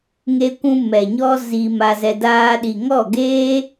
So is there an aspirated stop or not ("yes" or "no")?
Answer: no